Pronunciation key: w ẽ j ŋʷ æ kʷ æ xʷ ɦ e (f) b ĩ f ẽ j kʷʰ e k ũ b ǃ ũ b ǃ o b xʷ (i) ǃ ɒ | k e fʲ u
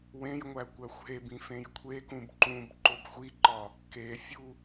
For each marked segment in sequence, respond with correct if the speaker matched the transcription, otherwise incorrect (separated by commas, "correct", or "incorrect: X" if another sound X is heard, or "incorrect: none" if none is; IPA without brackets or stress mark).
incorrect: none, correct